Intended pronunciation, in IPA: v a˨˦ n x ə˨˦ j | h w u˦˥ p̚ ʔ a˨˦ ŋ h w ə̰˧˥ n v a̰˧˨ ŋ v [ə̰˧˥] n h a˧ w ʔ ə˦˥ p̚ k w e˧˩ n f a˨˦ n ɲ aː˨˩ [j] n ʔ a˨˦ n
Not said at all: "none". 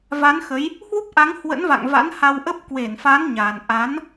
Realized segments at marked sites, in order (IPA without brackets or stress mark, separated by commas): a̰˧˥, none